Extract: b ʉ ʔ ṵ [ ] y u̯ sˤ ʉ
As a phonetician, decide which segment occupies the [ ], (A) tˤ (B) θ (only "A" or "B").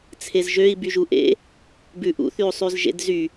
B